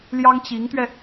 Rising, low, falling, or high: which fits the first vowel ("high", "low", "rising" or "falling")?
high